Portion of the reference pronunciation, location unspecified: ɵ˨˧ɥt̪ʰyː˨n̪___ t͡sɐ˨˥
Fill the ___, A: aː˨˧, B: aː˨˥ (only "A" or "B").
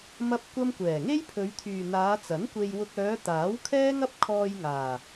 A